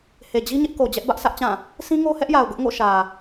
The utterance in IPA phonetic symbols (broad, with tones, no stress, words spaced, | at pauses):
he˨d͡ʑi˦ ɲɪ˦ʔko˨ d͡ʑɛ˦ʔbä˦ʔsä˦ʔt͡ɕã˦˨ | sĩ˦ŋo˦hɛ˦ʔja˨ʊ̯ ɡʊ˦ʔŋo̰˦˨ ʃä˨